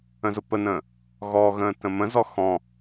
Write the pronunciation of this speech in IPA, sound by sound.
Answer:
ə̃ z ʊ p ə n ə̃ː | ɣ ɔ ɣ ə̃ː t ə̃ m ə̃ z ɔ x ɔ̃

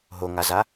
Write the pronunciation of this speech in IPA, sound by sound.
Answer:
ɦ o ŋ a z a

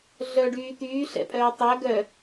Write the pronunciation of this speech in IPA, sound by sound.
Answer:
ɮ œ ɖ yː t̪ yː ɬ ɛ̰ pʼ œː tˤ œ ɡ œ

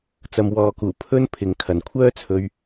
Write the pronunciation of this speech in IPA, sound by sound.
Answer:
t͡s ɐ˨ m w ɔː˨ k uː˨˩ pʰ ɵ˧ n pʰ ɪ˨ ŋ kʰ ɐ˨ n kʷʰ œː˥ t͡sʰ ɵ˧ ɥ

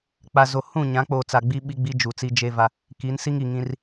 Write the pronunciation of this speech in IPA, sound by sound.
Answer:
k͡p a˨ z o˨ h ũ˦˨ ɲ ã˨˦ k͡p o˨ t͡s a˨ ɡ͡b i˦ ɓ i˦ ɡ͡b i˦ d͡ʒ u˨ t͡s i˦ d͡ʒ e˦ v a˦ | k i˨˦ n s i˦ ŋ i˨ ŋ ĩ˦ r

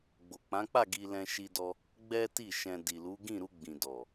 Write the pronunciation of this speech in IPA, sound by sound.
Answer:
ɡ͡b o˨ k͡p ã˨˦ k͡p a˦˨ ɡ i˧ l ɛ̃˧ ʃ i˧ d ɔ˧ | ɡ͡b ɛ˦ t i˦˨ ʃ ɛ̃˧ d i˨ l u˨˦ ɡ ĩ˦˨ ɾ u˧ ɡ͡b ĩ˨ d ɔ˨

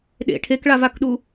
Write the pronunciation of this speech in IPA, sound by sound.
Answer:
ɗ ḛ ʈʰ e k ɭ a v a k ɗ u

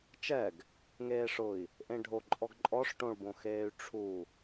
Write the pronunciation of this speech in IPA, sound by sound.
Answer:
t͡ʃ ɛ ɡ | ŋ eː ʂ ʊ i̯ | ʔ ẽ ɖʱ o ǃʼ ɔ ɡ ǃʼ ɔ ʂ ʈ õ ɭ b õ x eː y̯ ʈ͡ʂʰ u

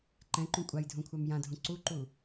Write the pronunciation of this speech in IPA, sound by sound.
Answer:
ǃ ɛ̃ ǃ ũ kʷʼ a j dʱ ũ kʷʰ a m j ã dʱ ũ ǀ u ǃ u

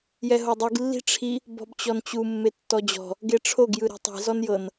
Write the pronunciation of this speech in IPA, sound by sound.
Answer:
j ɛ ɦ o dˤ i ɡ lː i̤ ʈ͡ʂʰ i | b ɔ̤ b t͡ɕ ɔ n t͡ɕ u mː e tː ɔ d͡ʑ ɔ̤ | ɡ e ʈ͡ʂʰ o ɡ j ɯ ɾ i̤ tˤ i̤ z ɔ n j ɤ n

